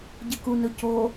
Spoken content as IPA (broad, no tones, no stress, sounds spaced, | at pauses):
ɟ ɨ k u n ɵ c o